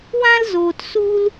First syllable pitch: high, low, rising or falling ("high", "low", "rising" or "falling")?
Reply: high